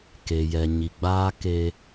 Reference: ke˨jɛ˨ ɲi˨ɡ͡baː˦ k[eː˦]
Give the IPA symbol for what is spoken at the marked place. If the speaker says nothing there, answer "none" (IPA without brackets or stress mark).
eː˦